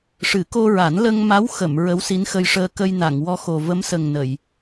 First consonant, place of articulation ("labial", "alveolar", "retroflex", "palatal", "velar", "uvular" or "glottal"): retroflex